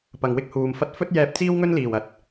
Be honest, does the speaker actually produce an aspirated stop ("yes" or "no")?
no